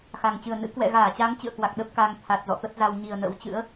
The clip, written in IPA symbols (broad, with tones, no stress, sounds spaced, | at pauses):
x a˨˩ ŋ t͡ɕ ɨ˨˩ ə̯ n ɨ̰˧˥ k w ɛ̰˧˨ ɣ aː˧˩ t͡ɕ a˨˦ ŋ t͡ɕ ɨ̰˧˨ ə̯ k w a˨˩ k̚ ɗ ə˦˥ p̚ k a˧ ŋ t̪ʰ a˨˩ t̚ z ɔ̰˧˨ t̪ ə˦˥ t̚ z a˧ w ɲ i˨˩ ə̯ n ə̰˧˥ w t͡ɕ ɨ̰˧˥ ə̯